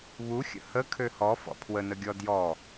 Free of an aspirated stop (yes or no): no